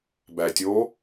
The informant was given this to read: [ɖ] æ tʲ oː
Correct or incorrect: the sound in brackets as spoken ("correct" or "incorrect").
incorrect